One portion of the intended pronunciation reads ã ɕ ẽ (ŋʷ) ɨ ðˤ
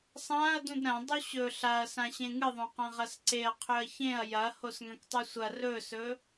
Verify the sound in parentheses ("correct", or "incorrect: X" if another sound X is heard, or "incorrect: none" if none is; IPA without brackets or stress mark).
incorrect: ŋ